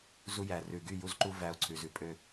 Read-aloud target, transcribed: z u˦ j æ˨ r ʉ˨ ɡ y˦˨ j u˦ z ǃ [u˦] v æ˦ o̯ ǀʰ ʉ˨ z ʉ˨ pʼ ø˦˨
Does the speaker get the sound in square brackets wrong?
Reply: no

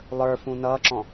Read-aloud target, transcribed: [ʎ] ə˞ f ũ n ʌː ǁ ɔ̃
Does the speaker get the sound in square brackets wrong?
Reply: yes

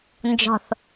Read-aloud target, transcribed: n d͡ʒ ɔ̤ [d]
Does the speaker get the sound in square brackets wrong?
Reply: yes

